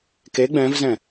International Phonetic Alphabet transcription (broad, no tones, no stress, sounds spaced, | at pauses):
k e ɡ͡b ɛ̃ v z ɛ̃